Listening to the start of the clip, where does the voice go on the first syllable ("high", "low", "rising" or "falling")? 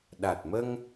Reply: low